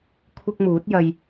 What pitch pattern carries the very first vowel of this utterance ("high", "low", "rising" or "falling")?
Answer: high